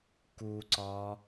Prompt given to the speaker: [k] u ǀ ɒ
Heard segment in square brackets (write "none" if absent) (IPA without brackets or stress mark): k